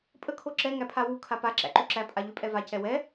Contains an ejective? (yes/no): yes